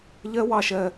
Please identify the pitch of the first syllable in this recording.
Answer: high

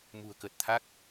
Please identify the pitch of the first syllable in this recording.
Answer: low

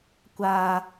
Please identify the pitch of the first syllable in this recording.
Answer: low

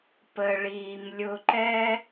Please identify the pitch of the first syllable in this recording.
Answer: low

